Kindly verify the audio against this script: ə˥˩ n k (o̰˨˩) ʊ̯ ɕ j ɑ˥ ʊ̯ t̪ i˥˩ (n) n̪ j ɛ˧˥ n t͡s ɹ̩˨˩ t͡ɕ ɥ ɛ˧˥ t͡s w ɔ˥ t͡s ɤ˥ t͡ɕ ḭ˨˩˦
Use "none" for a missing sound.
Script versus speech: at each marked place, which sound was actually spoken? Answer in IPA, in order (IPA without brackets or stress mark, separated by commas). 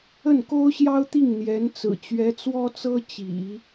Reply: o˥, ŋ